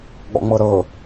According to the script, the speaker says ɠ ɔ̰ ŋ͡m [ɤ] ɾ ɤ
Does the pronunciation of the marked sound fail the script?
no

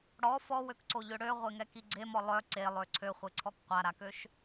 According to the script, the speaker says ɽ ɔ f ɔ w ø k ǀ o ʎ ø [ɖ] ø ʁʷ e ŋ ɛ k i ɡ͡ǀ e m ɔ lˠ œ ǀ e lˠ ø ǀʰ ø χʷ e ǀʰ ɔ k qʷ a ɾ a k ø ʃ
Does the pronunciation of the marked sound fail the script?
yes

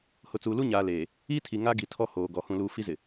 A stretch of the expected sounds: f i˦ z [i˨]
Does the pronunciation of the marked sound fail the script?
yes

